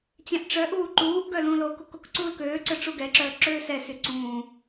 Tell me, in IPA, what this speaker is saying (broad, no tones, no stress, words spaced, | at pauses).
t͡ɕɛ̃ʔ ʈ͡ʂœ ʔuːǃuːʔɡœ lũːlokok okǀuːlkøːǀœ ʈ͡ʂuɡɛǁœː ǁøːsɛsy ǀũː